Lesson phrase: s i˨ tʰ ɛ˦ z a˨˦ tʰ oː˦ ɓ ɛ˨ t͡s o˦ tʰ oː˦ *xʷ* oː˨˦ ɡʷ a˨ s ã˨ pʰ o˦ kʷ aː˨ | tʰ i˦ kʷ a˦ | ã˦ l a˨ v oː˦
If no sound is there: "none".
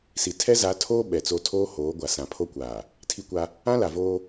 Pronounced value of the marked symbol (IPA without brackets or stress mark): h